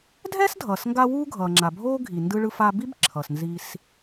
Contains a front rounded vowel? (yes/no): no